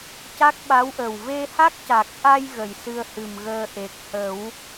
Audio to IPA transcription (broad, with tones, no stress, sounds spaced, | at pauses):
c a˦˥ k̚ ɓ a˧˥ w ʔ ə˨˩ w v e˧ h a˦˥ k̚ c a˨˩ k̚ ʔ a˧ j ɣ ə˨˩˨ j s ɨ˧ ə̯ h ɨ˨˩ m ɣ əː˧ ʔ e˨˩ k̚ h ə˨˩˦ w